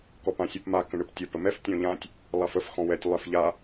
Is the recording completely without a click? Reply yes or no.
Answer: yes